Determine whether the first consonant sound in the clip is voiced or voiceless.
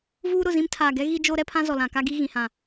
voiced